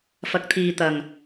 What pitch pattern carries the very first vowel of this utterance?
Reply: rising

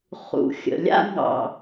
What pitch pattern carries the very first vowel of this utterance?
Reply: low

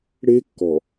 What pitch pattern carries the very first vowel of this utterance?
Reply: high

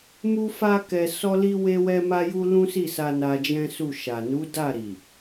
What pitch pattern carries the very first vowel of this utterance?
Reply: high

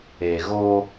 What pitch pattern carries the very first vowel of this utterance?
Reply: low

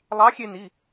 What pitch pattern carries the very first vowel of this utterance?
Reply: rising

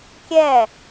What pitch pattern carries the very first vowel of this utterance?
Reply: falling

